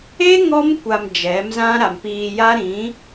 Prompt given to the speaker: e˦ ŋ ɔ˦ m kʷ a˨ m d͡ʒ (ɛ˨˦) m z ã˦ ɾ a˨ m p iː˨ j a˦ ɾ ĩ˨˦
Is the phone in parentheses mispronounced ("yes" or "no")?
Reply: no